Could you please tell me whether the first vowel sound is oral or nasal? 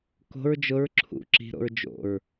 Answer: oral